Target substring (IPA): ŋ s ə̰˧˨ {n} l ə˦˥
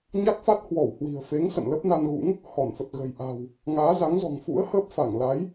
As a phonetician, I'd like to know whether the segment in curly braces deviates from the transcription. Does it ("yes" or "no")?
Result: no